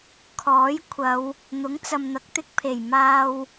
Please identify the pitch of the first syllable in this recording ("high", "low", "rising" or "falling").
rising